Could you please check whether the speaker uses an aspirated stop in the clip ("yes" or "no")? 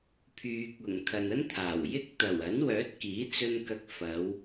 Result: yes